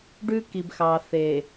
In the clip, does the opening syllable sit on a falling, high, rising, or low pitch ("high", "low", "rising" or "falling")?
high